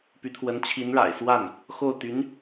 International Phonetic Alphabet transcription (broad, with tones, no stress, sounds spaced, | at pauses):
p y˧˥ t̪ʰ w ə˧˥ n t͡ɕʰ i˧˥ n ɻ a̰˨˩ ɪ̯ s w a˥˩ n | x o˥˩ ʊ̯ t̪ y˧˥ n